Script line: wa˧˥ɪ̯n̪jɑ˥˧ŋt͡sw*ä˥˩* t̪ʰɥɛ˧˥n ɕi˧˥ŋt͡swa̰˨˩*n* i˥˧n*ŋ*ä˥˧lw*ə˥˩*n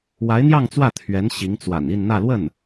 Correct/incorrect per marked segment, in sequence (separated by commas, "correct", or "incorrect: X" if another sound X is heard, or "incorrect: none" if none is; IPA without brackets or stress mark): correct, correct, incorrect: n̪, correct